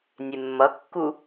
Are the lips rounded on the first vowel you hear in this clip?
no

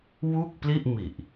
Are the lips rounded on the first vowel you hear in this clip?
yes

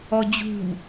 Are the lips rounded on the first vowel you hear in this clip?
yes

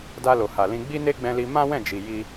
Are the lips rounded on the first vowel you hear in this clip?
no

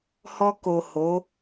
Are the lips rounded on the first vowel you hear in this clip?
yes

